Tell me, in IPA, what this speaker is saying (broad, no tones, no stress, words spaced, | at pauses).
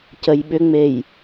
cəjɓʏŋ͡mej